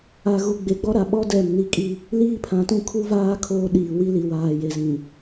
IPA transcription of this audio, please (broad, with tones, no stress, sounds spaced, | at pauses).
a˨ ɣ u˨ ɡ͡b e˨ ɡ͡b ɔ˦ ɾ a˨ ɓ ɔ˦ d ɛ˦˨ m n i˦ kʼ i˦ | l iː˦ pʰ ã˨ t ũ˦ kʰ u˦ v aː˦ kʰ oː˦ ɗ iː˨ w i˦ l i˨ w aː˨ j e˨ z ĩ˨